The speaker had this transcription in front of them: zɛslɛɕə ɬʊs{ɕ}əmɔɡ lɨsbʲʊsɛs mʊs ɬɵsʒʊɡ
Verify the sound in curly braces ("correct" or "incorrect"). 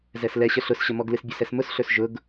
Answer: correct